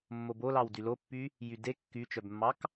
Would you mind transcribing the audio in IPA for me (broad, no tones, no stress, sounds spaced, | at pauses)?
mː o b o l ɑ w d y l o pː y | j y d e kː y t͡ʃ œ b mː ɑ k